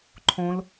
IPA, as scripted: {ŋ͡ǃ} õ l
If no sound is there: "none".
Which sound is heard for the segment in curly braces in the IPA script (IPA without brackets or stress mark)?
ǃʰ